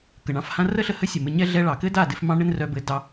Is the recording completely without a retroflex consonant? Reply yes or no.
no